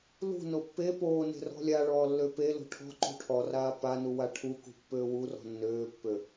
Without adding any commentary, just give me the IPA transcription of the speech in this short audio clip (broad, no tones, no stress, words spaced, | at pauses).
lṳno pːe poːne̤ rɔ̤lʲaɭɔː lːøpelo̤ ʈʰɔ̤ǃṳ ʈʰɔraː pa nuwaʈʰukṳ pːøːwurɔ̤ nːøːpːø